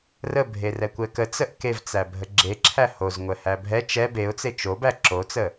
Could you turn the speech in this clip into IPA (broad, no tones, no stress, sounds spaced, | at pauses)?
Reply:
r ə bʱ e r ɛ kʷ ɛ k ə t͡s ə ʔ k e v t͡s æ bʱ ə ɡ͡ǁ e ǁʰ æ h o z ŋʷ ɛ h æ bʱ ɛ t͡ʃ ɛ b e ʊ̯ t͡s e t͡ʃ o b æ ǁ o t͡s ə